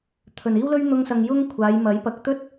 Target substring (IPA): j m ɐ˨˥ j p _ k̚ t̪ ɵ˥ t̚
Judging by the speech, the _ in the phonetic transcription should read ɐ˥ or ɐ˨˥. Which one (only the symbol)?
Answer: ɐ˨˥